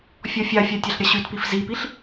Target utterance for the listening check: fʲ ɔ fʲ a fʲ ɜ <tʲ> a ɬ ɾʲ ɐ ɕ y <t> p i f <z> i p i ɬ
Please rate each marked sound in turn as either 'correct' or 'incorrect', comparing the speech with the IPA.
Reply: correct, correct, correct

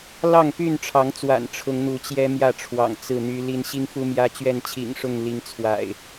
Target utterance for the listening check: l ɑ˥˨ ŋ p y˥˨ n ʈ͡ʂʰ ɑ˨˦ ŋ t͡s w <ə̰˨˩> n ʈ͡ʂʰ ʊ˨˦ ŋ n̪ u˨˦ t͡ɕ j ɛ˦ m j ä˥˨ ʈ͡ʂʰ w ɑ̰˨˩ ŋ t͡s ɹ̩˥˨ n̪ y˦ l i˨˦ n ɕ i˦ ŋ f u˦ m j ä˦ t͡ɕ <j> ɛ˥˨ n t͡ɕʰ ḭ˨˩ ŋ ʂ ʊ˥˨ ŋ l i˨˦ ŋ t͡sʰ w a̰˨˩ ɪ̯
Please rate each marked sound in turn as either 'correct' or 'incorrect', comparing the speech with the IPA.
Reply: incorrect: a̰˨˩, incorrect: ɥ

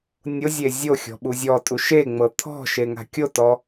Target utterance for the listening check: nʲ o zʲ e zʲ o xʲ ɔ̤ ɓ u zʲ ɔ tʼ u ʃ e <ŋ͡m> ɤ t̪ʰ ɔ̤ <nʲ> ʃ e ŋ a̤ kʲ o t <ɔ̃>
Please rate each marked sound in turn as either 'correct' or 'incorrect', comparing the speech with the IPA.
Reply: correct, incorrect: none, incorrect: ɔ

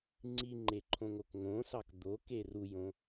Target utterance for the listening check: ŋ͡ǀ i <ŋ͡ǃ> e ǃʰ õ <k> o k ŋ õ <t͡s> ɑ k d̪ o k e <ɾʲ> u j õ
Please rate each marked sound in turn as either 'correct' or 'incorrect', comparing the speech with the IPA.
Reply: correct, incorrect: ŋ, incorrect: s, incorrect: r

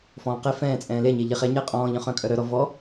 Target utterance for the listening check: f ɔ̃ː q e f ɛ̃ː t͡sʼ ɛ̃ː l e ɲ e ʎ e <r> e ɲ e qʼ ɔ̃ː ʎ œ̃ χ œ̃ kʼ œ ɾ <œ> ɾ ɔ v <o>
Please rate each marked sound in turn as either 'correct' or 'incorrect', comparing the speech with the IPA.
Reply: incorrect: χ, correct, incorrect: ɔ

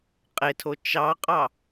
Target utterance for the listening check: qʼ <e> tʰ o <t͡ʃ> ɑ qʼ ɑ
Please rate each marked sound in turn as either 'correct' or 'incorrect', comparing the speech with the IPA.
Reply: correct, correct

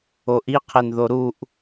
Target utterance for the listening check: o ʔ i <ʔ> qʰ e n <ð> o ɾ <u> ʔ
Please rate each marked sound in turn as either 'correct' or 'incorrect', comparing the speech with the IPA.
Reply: incorrect: none, correct, correct

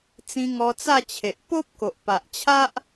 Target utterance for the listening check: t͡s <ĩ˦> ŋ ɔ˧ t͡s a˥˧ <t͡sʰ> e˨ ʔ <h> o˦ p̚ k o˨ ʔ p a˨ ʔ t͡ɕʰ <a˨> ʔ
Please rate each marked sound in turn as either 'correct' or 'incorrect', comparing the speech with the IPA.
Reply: incorrect: ĩ˧, incorrect: t͡ɕʰ, incorrect: p, incorrect: a˦

